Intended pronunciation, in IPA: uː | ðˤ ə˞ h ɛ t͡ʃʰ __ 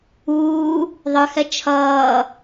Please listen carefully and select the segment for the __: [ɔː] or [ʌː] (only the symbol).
ʌː